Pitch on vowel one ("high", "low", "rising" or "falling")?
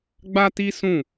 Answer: high